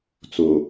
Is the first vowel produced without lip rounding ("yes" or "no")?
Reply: no